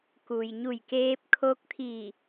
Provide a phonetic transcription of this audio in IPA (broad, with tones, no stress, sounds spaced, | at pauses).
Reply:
k u˩ j ɲ u˧˩ j k eː˧ p̚ kʰ o˧ k̚ t̪ʰ i˧˩